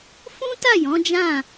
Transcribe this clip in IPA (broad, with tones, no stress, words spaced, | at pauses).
fũ˦ta˦˨ jɔ̃˨˦d͡ʒã˦˨